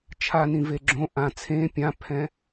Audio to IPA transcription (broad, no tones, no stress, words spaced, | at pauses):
t͡ʃʰanĩ veɡ͡ǁõ ʔã t͡sʰẽ pʲãpʰɛ̃